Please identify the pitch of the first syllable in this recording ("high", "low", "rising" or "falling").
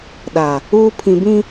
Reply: low